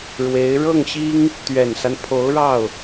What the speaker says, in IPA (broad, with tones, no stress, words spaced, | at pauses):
ɻwe˧˥ɪ̯ ɻɤ˥˩ŋɕi˥ŋ | t̪ɥɛ˨˩nsa˦n pʰo˧˥ʊ̯ɻɑ˥˩ʊ̯